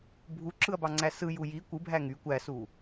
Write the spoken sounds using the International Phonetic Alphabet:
bʱ u ǁ ɯ ɐ̯ b ɑ ŋ͡ǀ æ s ɯ j u j i kʷ ɯ bʱ æ ŋ y kʷ æ s u

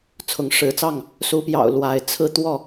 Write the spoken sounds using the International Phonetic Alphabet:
t͡sʰ ʊ˨˦ ŋ ʂ ɻ̩˨˦ t͡s ɑ˥˨ ŋ | s u˨˦ p j ɑ̰˨˩ ʊ̯ l w a˨˦ ɪ̯ t͡sʰ ɹ̩˥˨ t̪ w ɔ˥˨

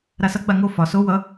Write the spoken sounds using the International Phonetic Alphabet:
ɾ a s ʌ ɡ͡b a ŋ o f ɒ s o w ʌ

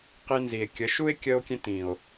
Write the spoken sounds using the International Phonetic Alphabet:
q i˧ n z i˨ e̯ kʲ ə˨˦ ʃ u˦ e̯ kʲ ə˧ o̯ kʲ ẽ˧ t ĩ˨ o̯

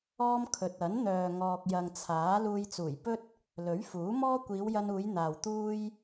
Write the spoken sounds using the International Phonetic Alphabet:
ɔː˥ m kʰ ɵ˨ t̚ ɐ˨˥ n n̪ œː˨ ŋ ɔː˨ k̚ j ɐ˨ ŋ t͡sʰ aː˨˥ l uː˧ j t͡s uː˨˩ j p ɵ˥ t̚ | l ɵ˨˥ ɥ f uː˨˥ m ɔː˥ kʷ iː˨˧ w j ɐ˧ n uː˨˧ j n̪ aː˨ w t̪ uː˥ j

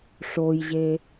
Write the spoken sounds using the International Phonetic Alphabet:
ʂ o j ʑ e

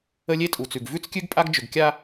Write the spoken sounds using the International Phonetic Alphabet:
ə˦ lʲ e˦ tʼ u˨ t͡s ʉ˨ ɡ v ʉ˦ t͡s kʲ ʉ˦ ɡ pʼ a˦ ɡ d͡ʒ ʏ˨ ɡ kʲ a˦

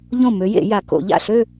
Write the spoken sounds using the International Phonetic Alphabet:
ʎ õ˥˩ m ø˨˥ j ḛ˨˩˦ j a˨˩˦ k o̰˨˩˦ ʎ a̰˥˩ ɬ ø˥˧

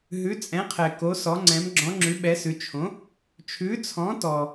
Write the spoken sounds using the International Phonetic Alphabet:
ɦ ʉ˨˥ t͡sʼ ɛ̃˨˥ qʰ ɛ˨ k o˨˥ s ɔ˨˥ ŋ͡ǀ ɛ̃˨˥ m ɡ͡ǁ ɔ̃˨˥ ŋ͡ǁ ʉ˨˥ ɓ ɛ˨˥ s ʉ˨˥ t͡ʃʰ õ˨˥ | t͡ʃʰ ʉ˨˥ t͡sʰ ɔ̃˨˥ t ɔ˨

